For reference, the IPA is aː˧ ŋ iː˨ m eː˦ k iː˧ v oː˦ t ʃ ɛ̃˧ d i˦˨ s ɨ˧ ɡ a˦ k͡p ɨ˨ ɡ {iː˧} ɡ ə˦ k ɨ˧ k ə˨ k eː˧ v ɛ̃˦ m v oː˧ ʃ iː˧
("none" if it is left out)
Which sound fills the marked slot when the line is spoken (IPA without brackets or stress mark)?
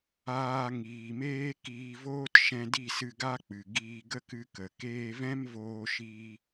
iː˧